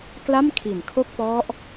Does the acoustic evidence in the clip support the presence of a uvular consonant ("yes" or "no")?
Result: no